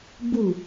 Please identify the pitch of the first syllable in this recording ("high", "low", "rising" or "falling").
falling